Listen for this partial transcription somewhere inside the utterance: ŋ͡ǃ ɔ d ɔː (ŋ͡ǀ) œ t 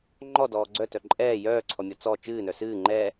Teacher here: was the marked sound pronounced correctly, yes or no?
no